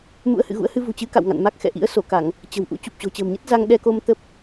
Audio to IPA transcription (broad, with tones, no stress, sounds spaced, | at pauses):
m ṵ˧˥ ə̯ h ɨ̰˧˨ ɣ ṵ˧˥ ə̯ h ɨ˧ v ṳ˨˩ t͡ɕ ɨ˨˦ k a̰˧˨ w ŋ a̰˧˨ n m a˦˥ k̚ x ɛ̰˧˨ ʔ ḭ˧˥ ə̯ s o˧˩ k a˧˩˨ ŋ | t͡ɕ ə̤˨˩ w ʔ ṵ˧˥ t͡ɕ u˨˩ p̚ t͡ɕ o̤˨˩ t͡ɕ ə̤ː˨˩ m ɲ ə˦˥ t̚ z a˧ ŋ ɗ ɛ˧ k o˧ m t̪ ə˦˥ p̚